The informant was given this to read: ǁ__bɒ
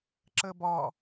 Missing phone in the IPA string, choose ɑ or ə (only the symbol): ə